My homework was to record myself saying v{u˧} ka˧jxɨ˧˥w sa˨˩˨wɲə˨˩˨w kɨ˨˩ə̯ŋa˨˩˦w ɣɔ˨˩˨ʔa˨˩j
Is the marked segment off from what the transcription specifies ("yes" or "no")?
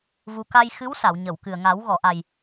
no